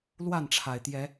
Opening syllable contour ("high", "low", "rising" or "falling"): falling